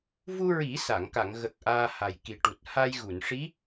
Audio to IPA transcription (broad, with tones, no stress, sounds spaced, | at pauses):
v u˧ ɹ i˨˩˦ s a˨˩˨ ŋ k a˨˩˨ ŋ ɣ ə˨˩ k̚ ʔ aː˧ h a˨˩ j k i˨˩ ʈ u˨˩ t̚ h a˧ j ɣ u˨˩˨ n ʂ i˧˥